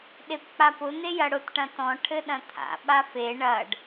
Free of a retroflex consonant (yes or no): no